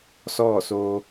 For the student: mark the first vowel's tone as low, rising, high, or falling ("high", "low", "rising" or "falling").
falling